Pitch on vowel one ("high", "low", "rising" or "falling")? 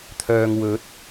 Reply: low